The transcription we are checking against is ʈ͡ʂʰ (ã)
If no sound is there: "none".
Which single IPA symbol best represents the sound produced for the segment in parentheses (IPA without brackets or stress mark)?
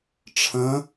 ə̃